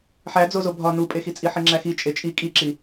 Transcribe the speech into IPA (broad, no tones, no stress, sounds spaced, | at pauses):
ħ æ d͡z o z o bʱ ɒ n u pʼ e x i t͡sʼ i ħ i ŋ͡ǁ æ x i t͡ʃʼ e t͡ʃʼ i kʼ i ǁ i